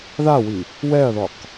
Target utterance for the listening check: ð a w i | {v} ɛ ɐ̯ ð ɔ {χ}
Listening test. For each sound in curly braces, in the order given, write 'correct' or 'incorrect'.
incorrect: w, incorrect: q

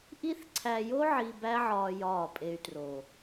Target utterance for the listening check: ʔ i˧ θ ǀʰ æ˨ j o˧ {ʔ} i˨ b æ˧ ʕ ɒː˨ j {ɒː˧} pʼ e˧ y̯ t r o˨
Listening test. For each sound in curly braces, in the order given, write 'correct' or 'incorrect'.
incorrect: ʕ, incorrect: ɒː˦˨

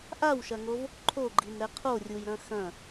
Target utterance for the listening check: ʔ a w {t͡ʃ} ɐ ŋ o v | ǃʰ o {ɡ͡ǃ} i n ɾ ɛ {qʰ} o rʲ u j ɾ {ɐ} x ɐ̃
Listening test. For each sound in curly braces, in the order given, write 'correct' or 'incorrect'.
incorrect: ʃ, correct, correct, incorrect: ɐ̃

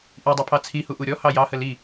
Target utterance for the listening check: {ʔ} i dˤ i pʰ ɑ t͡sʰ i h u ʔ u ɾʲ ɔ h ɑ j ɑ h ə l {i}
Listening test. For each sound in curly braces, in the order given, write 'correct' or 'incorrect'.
correct, correct

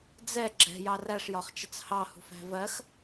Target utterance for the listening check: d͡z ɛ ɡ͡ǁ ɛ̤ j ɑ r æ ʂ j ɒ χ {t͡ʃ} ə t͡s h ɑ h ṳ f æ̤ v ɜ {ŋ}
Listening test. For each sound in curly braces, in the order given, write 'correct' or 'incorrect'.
correct, incorrect: x

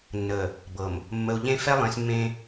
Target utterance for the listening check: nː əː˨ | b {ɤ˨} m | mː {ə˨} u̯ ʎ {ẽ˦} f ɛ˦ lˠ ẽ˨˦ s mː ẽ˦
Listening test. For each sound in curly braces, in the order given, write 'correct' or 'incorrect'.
correct, correct, correct

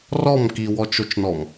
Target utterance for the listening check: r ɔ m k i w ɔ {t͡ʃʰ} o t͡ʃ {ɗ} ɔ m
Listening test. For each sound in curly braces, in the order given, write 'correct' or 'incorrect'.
incorrect: t͡ʃ, incorrect: n

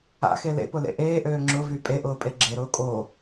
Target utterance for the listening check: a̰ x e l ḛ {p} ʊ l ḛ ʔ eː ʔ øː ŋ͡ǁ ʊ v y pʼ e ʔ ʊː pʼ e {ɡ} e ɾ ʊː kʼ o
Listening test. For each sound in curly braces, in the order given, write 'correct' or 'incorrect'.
correct, incorrect: ɡ͡ǁ

